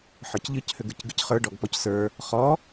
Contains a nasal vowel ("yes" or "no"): no